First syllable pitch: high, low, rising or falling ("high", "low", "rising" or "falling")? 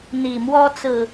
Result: low